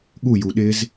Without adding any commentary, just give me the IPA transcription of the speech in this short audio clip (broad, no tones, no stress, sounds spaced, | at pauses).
ɠ u j u ɗ ɪ z